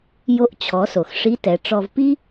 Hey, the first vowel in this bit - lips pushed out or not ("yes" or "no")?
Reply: yes